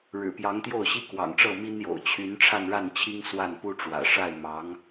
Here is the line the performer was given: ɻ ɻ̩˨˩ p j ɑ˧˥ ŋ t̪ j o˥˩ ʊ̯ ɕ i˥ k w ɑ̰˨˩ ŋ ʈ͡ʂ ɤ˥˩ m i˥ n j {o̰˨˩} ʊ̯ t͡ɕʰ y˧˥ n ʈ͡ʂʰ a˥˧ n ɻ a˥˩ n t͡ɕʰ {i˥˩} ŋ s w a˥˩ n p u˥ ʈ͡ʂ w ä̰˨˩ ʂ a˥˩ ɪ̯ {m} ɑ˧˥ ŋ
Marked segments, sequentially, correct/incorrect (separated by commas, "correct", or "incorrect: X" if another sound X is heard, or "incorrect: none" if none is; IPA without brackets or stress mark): correct, incorrect: i˥, correct